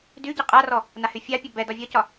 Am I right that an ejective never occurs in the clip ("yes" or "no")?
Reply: no